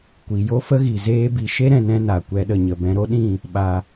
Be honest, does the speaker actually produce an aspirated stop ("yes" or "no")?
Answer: no